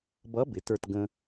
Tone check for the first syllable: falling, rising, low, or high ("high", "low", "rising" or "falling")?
rising